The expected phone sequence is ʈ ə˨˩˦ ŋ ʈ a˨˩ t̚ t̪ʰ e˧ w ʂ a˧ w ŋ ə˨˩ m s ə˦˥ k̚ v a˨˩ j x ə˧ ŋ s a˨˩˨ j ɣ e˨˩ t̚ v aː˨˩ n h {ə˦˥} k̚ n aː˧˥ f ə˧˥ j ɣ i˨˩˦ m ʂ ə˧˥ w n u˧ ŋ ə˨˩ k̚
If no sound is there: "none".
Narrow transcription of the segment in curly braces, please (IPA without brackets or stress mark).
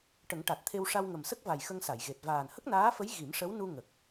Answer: ə˦˥